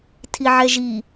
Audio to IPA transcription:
tʰ i ʕ ɛ ʒ i

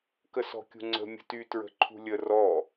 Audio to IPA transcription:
k ə s ɔ̤ kʲ ṳ ŋ͡ǀ ə̤ mʲ ə̤ t y t ɹ ə̤ ǃʰ ṳ lʲ ə r ɔ

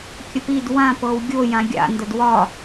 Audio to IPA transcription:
kʲ ə p i d w ã p ɤ w ɡʲ o j ã ɡʲ a̰ n d ə d w ɒ

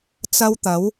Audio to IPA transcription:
t͡s ɐ˥ w t̪ ɐ˨˥ w

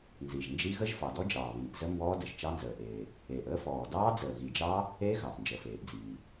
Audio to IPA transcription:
n z i˨˩ ʒ n d͡ʒ i˦˥ ɣ ə˦˥ ʒ f ɑ˨˩ d ɔ˦˥ d͡ʒ ɑː˨˩ β iː˨˩ ʔ z ə˦˥ m b ɔː˦˥ d ə˨˩ ʒ t͡ʃ ɑ˦˥ n z əː˨˩ ʔ eː˨˩ | eː˨˩ ʔ əː˦˥ f ɔː˨˩ d ɑː˦˥ d͡z əː˨˩ ɣ i˨˩ d͡ʒ ɑ˦˥ | e˦˥ ɣ ɑ˨˩ ʔ n d͡ʒ ə˨˩ f eː˨˩ ʔ d͡z iː˨˩

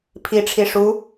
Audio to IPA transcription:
pʰ i ʈ͡ʂʰ i ʂ u

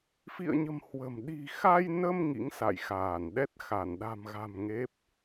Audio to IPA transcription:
f ḭ˧˨ ə̯ ɲ ə̤˨˩ m h w ə̤˨˩ m ɗ i̤˨˩ x a˧ j n ə˧ m ŋ ḭ˧˥ ŋ s a̰˧˨ j x aː˧˩ n ɗ ɛ˦˥ t̚ x a˧˩ n ɗ a̤˨˩ m ɣ a̤˨˩ m ŋ e˦˥ p̚

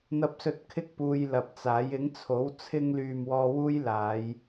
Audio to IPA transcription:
n̪ ɐ˨ p̚ s ɵ˨ t̚ kʰ ɪ˧ k̚ p uː˧ j l ɐ˨ p̚ t͡s aː˨˥ j ɪ˨˥ ŋ t͡sʰ o˨˥ w t͡sʰ ɪ˧ ŋ l yː˨ m w ɔː˧ w uː˥ j l aː˨˧ j

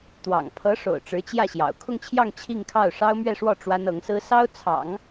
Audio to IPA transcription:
t̪ w ɑ̰˨˩ ŋ pʰ ɤ˧˥ ʂ o̰˨˩ ʊ̯ ʈ͡ʂ ɻ̩˧˥ t͡ɕ j ä˥˩ ɕ j ɑ̰˨˩ ʊ̯ kʰ ʊ˥˧ ŋ t͡ɕʰ j ɑ˥˧ ŋ t͡ɕʰ i˥˧ ŋ kʰ ɑ˥˩ ʊ̯ ʂ ɑ˥ ʊ̯ m ɥ ɛ˥˧ ʂ w ɔ˥˩ ʈ͡ʂ w a˥ n ɤ˧˥ ŋ s ɹ̩˥ s ɑ˥ ʊ̯ t͡sʰ ɑ̰˨˩˦ ŋ

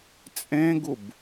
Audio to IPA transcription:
t͡sʼ ẽ ɡ u b

